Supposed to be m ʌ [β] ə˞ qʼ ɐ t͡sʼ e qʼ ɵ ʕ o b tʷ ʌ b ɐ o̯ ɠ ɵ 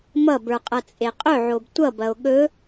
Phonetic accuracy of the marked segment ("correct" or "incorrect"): incorrect